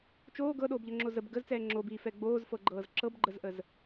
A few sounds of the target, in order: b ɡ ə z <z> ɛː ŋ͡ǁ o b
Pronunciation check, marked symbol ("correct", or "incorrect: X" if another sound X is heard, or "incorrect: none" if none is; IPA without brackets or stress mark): incorrect: t͡s